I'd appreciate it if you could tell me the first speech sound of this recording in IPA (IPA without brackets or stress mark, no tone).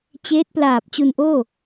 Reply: t͡ɕ